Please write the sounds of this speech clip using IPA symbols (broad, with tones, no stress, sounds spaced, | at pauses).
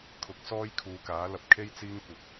kʰ ʊ˨˥ k̚ s ɔː˥ j kʰ uː˨˧ k aː˨˥ l ɐ˧ p̚ kʰ e˥ j t͡s iː˥ ŋ kʷ ɪ˨˥ k̚